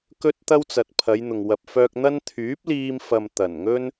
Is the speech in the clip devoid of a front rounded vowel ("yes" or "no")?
no